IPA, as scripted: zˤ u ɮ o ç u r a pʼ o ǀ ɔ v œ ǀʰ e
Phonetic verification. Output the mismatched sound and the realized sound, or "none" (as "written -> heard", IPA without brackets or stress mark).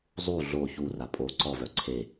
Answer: none